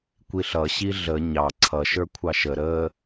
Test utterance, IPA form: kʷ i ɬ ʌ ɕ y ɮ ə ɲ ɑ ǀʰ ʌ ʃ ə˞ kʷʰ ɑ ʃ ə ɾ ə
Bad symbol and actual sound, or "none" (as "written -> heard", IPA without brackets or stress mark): y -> i